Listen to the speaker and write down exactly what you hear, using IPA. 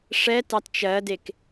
ʂ ɛ t ɑ t t͡ʃ ɜ d e k

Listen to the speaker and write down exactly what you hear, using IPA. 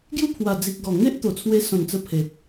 ɡ j u˥˧ pʰ w a˨˩ d͡z i˨ k̚ ɡ ɔ˨˩ ŋ e˦ ʔ t̪ o˨˩ t͡sʰ w e˧ s ɔ̃˨˩ n t͡s ə˧ pʰ e˨ t̚

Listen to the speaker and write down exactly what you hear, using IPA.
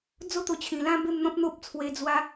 d͡z o˥˧ t̪ o˧ t͡ɕʰ ĩ˨˩ l ã˦ b e˥˧ m n̪ ɔ̃˦ p̚ n̪ o˦ p̚ t͡sʰ w e˧ d͡z w a˧

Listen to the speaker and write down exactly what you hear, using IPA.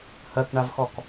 h ɜ k ɳ a v x ɔ k

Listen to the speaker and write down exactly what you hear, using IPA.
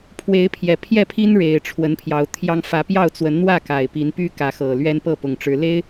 pʰ w e˨˦ ɪ̯ pʰ j ɛ˨˩ pʰ j ɛ˥˨ pʰ i˦ n ɻ e˨˩ ɪ̯ ʈ͡ʂʰ w ə˨˦ n pʰ j ɑ˨˦ ʊ̯ t̪ʰ j ɑ˦ ŋ f ä˨˦ p j ɑ˥˨ ʊ̯ t͡s w ə˨˦ n n̪ w ä˥˨ k a˨˩ ɪ̯ p i˨˦ n p y˦ k ä˨˦ x ɤ˨˩ l ɥ ɛ˦ n p ɤ˥˨ p ʊ˨˩ ŋ ʈ͡ʂ ɻ̩˨˦ l e˦ ɪ̯

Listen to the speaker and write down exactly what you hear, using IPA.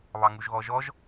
β ɑ ŋ u ʒ ɣ ɔ ʒ ɔ ʒ

